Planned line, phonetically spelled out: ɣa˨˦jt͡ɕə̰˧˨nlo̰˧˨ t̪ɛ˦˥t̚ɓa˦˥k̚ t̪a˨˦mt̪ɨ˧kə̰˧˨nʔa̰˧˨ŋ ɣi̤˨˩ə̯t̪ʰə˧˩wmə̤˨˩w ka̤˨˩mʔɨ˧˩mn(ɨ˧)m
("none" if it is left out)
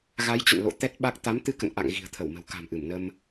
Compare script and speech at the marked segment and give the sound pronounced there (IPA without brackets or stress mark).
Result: ə˧